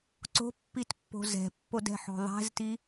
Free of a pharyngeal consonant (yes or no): no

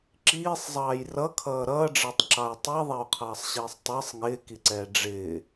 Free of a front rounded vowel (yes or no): yes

